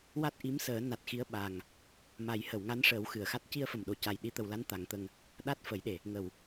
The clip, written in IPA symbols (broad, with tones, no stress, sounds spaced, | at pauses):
w a˦˥ t̚ ʔ i˧˥ m s əː˨˩˦ n a˨˩ t̚ x i˧˥ ə̯ ɓ a˨˩ ŋ | m a˨˩˦ j h ə˨˩˨ w ŋ a˧˥ n ʂ əː˨˩˦ w x ɨ˨˩˨ ə̯ x a˦˥ t̚ c i˧ ə̯ f ə˨˩ m ɗ o˨˩ c a˨˩ j ɗ i˨˩˦ t̪ ə˨˩˨ w l a˧˥ n t̪ a˨˩˦ ŋ t̪ ə˧ ŋ | ɗ a˦˥ t̚ f ə˨˩˦ j ɗ e˨˩ | ŋ ə˨˩˨ w